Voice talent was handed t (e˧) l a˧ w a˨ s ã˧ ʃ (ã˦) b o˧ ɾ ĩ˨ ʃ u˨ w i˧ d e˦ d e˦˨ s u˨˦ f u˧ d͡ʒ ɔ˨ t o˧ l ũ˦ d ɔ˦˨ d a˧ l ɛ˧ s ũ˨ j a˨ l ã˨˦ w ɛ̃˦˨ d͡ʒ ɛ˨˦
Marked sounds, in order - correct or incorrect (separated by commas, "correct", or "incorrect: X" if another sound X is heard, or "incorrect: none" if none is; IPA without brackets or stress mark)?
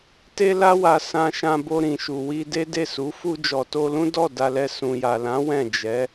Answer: correct, incorrect: ã˧